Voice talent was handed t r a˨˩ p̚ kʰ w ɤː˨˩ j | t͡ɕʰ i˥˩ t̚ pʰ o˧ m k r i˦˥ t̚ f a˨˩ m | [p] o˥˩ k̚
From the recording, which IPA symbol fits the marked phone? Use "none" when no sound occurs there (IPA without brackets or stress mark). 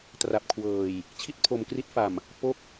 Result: p